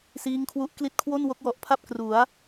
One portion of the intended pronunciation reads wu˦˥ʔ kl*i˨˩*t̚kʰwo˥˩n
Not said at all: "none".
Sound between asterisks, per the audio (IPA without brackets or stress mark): i˦˥